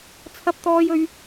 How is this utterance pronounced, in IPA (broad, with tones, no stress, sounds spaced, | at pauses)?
t͡sʰ ɐ˧ p̚ t̪ ɔː˧ j ɵ˨˧ ɥ